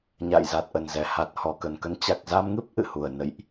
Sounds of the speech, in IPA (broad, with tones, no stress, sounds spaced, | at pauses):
ɲ a̰˧˨ j z a˨˩ t̚ ʔ ə˨˩ n z ɛ˨˩ h a˨˩ t̚ h ɔ˨˩ k ə˨˩ n k ə˨˦ n t͡ɕ a˨˩ k̚ z a˧ m ŋ ɨ˦˥ p̚ ʔ ɨ̰˧˨ h u˨˩ ə̯ n ə̰˧˨ j ʔ